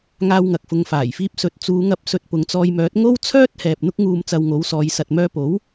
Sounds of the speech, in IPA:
ŋaː˧wŋɐ˨k̚ fʊ˨ŋfaː˨˩jfiː˧p̚sɵ˨t̚ t͡suː˨˧ŋɐ˧p̚ sɵ˧t̚pʊ˨ŋt͡sɔː˧jmœː˨˥t̚ ŋo˥wt͡sʰœː˥t̚ hɛː˨p̚n̪ʊ˥k̚ŋuː˧m t͡sɐ˧wŋo˨˥wsɔː˨˧jsɐ˧t̚ mœː˧po˨˥w

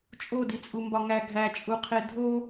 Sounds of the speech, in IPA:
t͡ʃʼodit͡sʼumbɒ ŋæ ɡʱæt͡ʃʼuqʰe dʱo

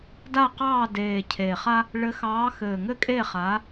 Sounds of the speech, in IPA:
da˦˨qɑː˦˨deː˨˩ cʰeː˨˩χa˦ | ɭɘ˨˦xɑː˨˦xɘː˨˩ ŋɘ˦kʼe˦˨χa˨˦

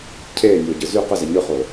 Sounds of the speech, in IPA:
cʰeːnʲoːɟɯ zy qɯzɛ ɲɯχoː

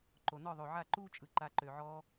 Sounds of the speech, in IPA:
ǃo˨ nɔ˦˨ðˤo˨ʕa˦˨ǃuː˦ t͡ʃʼɯ˨ ǃa˧ǃø˨ʕɔː˦

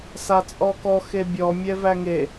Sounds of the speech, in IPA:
sat͡sʼɔkɔ xebʲɔ mʲɛvæŋe

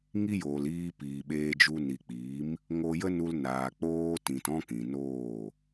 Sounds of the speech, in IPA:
ŋi˦joː˨liː˧piː˨ ɓeː˧d͡ʒu˧ ni˨k͡piː˨˦m | ŋo˧jə˦nu˧l naː˨k͡poː˧tĩ˨t ɔ̃˦kĩ˨noː˦˨

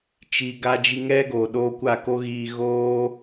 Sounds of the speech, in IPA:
t͡ʃi˨ ɡa˧ d͡ʒi˧ŋɛ˦ɡo˨ ɗoː˧kʷa˦˨ ko˦ɣiː˧ ɣoː˦

